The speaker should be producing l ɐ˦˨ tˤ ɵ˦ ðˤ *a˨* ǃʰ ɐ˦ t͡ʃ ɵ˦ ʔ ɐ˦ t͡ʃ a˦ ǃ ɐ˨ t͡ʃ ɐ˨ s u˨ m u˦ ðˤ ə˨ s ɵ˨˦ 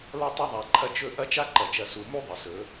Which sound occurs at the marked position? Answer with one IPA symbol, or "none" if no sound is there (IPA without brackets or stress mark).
a˨